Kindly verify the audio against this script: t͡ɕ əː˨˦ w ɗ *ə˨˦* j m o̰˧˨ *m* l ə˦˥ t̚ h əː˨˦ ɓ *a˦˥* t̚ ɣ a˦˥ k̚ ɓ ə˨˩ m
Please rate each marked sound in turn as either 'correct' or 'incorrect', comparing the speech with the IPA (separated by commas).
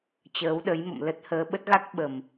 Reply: correct, correct, incorrect